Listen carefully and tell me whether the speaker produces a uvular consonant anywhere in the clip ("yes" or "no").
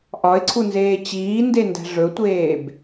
no